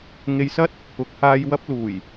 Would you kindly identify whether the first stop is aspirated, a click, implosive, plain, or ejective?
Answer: plain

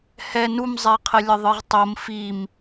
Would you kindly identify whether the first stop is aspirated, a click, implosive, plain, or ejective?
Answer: aspirated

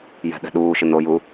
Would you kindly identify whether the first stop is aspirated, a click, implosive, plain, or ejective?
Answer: implosive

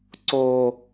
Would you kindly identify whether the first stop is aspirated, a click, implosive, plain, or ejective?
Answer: click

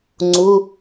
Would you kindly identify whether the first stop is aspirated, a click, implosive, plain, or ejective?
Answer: click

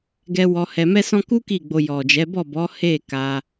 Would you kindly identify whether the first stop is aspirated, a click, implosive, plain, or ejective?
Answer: plain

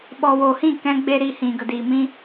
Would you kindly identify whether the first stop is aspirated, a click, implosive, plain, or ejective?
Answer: implosive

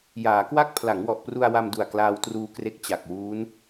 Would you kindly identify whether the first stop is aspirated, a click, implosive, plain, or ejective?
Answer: plain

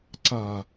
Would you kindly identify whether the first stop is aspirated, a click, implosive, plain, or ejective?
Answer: click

